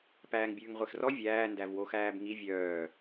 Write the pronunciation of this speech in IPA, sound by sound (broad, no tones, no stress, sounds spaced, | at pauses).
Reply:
p æː ŋ bʲ ʉː ŋ ʁʷ e x r ɔ vʲ æː n d æ v w o x æː b ŋ i vʲ œː